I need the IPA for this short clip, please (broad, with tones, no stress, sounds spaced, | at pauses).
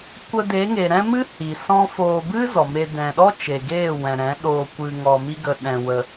kʷ ə˧ d e˨˦ ŋ e˨ ɾ ɛ̃˦ m ɨ˦ h i˨ s ɔ̃˦ f oː˧ b ɨ˦ z ɔ˨ m e˧ d ɛ̃˨ ɗ ɔ˦ t͡ʃ e˨ ɡ eː˦˨ w ɛ̃˨ ɾ ɛ̃˨˦ ɗ oː˧ kʷ ɨ˧ ŋ ɔ˧ m i˦ ɡ ə˧ ɗ ɛ̃˧ w ə˧